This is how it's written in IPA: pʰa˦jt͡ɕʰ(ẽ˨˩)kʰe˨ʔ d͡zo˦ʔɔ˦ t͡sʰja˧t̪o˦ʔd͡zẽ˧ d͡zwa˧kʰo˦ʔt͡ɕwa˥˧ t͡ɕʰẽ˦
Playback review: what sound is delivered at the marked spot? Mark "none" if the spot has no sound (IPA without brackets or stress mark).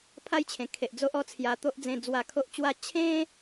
ẽ˨˩